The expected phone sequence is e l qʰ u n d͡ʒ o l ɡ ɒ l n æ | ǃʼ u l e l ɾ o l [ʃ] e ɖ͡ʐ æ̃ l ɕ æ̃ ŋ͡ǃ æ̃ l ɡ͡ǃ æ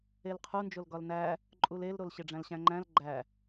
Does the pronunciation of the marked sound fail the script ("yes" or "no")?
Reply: yes